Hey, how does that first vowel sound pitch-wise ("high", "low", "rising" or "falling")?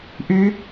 rising